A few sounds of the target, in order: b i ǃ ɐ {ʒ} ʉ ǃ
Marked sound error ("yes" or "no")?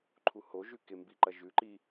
no